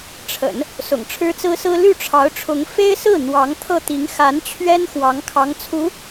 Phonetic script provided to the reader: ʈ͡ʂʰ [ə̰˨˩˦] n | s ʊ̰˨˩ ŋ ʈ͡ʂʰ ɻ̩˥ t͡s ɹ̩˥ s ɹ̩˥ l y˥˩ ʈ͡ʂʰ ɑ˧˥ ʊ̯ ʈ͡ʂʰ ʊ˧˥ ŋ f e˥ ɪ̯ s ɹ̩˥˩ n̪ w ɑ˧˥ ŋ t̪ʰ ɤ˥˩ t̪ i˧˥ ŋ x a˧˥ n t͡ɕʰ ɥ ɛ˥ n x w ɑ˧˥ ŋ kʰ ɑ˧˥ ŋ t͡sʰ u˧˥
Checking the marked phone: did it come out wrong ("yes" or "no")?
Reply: no